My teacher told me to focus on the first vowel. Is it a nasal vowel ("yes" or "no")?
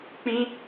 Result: yes